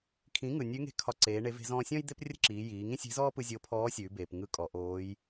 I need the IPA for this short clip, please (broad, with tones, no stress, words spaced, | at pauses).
kʰĩ˩˧ŋɯ˩ nʲʉ˧˥ŋe̤˧˥ kʰɒ˧ ǀeː˩˧ ɳe˩˧ve̤˩˧zɔ̃ː˧ sʲɔ̃˥j d̪e˥p rʲə̤˥ǁiː˩˧jiː˩˧ ŋĩ˥sʲe̤˧˥zɔː˥pɯ˧ zʲo˧˥pʰɔː˧˥sʲʉː˩˧beː˩p ŋɯ˧˥kʼɔ˩˧ʔoː˧˥j